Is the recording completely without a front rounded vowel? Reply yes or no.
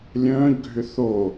no